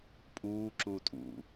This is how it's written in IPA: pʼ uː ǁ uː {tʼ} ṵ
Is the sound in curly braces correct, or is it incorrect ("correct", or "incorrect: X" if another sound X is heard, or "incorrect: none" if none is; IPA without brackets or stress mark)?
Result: correct